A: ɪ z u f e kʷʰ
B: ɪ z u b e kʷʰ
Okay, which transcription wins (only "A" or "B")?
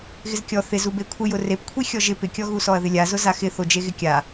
B